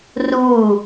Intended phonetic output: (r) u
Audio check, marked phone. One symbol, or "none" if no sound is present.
r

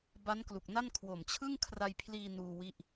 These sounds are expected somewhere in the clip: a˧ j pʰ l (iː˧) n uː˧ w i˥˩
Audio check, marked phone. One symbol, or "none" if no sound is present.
iː˧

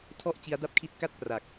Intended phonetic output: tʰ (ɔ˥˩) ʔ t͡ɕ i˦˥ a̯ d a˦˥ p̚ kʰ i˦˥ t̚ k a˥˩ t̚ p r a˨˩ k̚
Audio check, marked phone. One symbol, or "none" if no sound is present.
ɔ˥˩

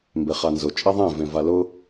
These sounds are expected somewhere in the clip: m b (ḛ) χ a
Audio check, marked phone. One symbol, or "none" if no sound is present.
e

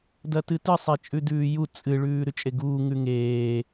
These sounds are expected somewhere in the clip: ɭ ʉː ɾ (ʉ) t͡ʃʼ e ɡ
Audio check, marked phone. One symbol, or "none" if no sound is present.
ʉ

